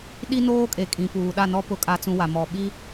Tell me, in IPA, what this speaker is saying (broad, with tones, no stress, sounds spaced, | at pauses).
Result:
ɗ i˦ n oː˦ kʼ e˨ kʼ ĩ˨ p uː˨ ɗ a˦˨ n ɔ˦ p ʊ˨ kʼ a˨ t͡s ũ˨ w a˨ m ɔ˨ ɓ i˦